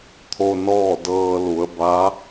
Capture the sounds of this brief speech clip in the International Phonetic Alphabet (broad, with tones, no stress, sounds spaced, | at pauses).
t̪ʰ o˧ n ɔː˥˨ d ɤː˧ l u˩˧ ə̯ b a˧˥